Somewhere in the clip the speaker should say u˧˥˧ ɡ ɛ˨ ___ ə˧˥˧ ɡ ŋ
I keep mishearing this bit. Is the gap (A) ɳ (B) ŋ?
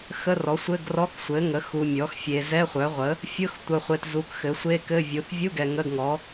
B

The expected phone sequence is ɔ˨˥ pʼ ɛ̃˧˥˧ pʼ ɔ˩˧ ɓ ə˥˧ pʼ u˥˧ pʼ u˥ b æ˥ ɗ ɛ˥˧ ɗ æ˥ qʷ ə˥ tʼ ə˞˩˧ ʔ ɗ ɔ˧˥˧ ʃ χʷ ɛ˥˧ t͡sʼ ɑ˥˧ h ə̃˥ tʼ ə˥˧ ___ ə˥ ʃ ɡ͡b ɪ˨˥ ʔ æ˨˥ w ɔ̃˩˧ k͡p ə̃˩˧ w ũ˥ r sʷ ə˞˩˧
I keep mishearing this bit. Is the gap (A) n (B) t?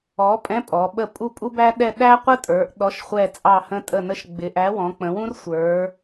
A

